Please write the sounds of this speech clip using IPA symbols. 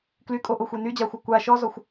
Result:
k l y kʼ o ʔ o xʷ e n y d͡ʑ a xʷ ɐ kʷ a ʃ ɔ z ɔ xʷ

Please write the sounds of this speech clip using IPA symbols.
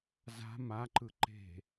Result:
z a̤ m a ǃ ɯ ǃ e̤

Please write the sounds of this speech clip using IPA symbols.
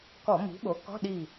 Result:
k ɔ˧˩˧ m i̤˩˥ ɓ o˩˥ k ɔ̤˧˥˧ ɗ i˧˩

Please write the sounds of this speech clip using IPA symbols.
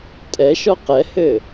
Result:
tʼ ɛ ʃ ɔ q ɛ h ɘ

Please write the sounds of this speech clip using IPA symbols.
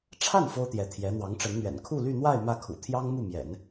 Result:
ʈ͡ʂʰ a˥˩ n f o˥ ʊ̯ t̪ j ɛ˧˥ t̪ʰ j ɛ˧˥ n̪ w ɑ˧˥ ŋ ʈ͡ʂ ə˧˥ n n̪ ɥ ɛ̰˨˩ n kʰ u˥˧ l y˥˧ n̪ w a˥˧ ɪ̯ m ä˥˩ kʰ ṵ˨˩ t̪ʰ j ɑ˥ ŋ m u˥˩ m j ɛ̰˨˩˦ n

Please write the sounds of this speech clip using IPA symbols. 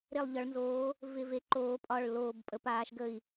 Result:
ɾ e˧˩ lˠ ʎ ɒ˩˧ ɭ n z oː˩˧ | v ɪ˧˩ v e˩˧ ǃ oː˩˧ pʼ ɒ˧˩ ɭ l oː˧˩ b pʼ ə˩˧ p aː˩˧ ʃ ɡ ə˧˩ i̯

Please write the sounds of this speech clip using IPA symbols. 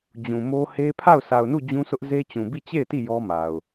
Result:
d͡ʑ ũ˨ m o˦ h e˦ pʰ a˦˨ ʊ̯ sʰ a˨ ʊ̯ n u˦˨ d͡ʑ ũ˦ s ʊ˦ ʔ z e˦ t͡ɕ ũ˨ b i˦˨ t͡ɕ e˦˨ ɪ̯ t i˦˨ j ɔ˦ m a˨ ʊ̯

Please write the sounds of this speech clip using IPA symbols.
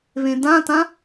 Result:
β ẽ d ã t ã

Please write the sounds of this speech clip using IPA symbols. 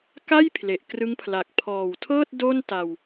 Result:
k a˥˩ j pʰ l e˨˩ ʔ k r ɯ˦˥ ŋ pʰ l a˨˩ k̚ pʰ ɔː˨˩ w tʰ ɤː˥˩ t̚ d o˥˩ n t a˧ w

